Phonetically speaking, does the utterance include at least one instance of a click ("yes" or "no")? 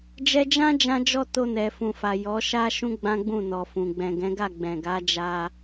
no